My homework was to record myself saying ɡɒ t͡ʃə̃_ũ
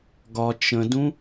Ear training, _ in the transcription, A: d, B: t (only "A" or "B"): A